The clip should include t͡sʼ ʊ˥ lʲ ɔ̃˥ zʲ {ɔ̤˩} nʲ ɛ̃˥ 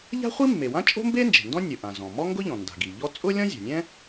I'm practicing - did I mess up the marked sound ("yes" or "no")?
yes